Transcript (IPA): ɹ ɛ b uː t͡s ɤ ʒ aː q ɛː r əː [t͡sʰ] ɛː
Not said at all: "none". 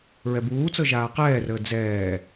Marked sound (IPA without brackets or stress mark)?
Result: d͡z